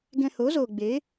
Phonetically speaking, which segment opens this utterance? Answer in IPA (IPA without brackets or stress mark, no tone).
ɡ